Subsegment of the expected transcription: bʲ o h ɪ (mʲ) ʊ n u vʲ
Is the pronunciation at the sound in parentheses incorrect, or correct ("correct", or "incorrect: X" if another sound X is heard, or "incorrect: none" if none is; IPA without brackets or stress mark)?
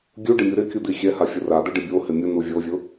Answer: correct